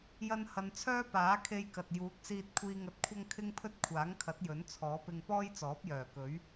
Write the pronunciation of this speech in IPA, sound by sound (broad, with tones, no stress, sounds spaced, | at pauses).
j ɐ˧ n h ɐ˨ n t͡sʰ œː˥ p aː˨˥ kʰ e˧ j k ɐ˨ t̚ j uː˨˥ k̚ s iː˧ t̚ kʷʰ iː˧ ŋ ɐ˧ t̚ kʷʰ ɐ˥ ŋ kʰ ɪ˥ ŋ pʰ ɵ˥ t̚ kʷʰ aː˨˥ ŋ kʰ ɐ˨˥ t̚ j ɵ˨˥ n t͡sʰ ɔː˨˥ p ɪ˧ ŋ p ɔː˥ j t͡s ɔː˨˥ p̚ j œː˨˩ k ɵ˨˥ ɥ